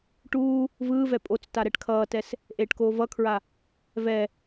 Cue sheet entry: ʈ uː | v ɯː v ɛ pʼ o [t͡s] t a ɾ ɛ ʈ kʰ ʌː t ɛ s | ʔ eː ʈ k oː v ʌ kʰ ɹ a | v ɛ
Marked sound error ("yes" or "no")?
no